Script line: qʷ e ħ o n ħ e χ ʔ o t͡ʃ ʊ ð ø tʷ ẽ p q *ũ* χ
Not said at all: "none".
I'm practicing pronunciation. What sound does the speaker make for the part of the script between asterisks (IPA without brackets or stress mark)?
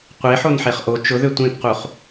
u